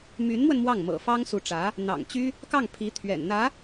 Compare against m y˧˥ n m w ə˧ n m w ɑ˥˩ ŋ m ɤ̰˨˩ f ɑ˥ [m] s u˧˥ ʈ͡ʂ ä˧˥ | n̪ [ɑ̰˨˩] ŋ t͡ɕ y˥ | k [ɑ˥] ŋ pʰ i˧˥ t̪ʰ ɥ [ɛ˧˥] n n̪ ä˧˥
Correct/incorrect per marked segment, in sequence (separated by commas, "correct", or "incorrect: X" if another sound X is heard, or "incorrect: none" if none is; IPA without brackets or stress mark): incorrect: ŋ, correct, incorrect: ɑ˥˩, incorrect: ɛ̰˨˩